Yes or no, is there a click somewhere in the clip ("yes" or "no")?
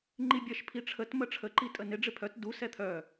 yes